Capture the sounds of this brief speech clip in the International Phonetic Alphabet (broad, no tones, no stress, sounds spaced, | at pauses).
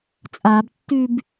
t͡sʼ a b tː y b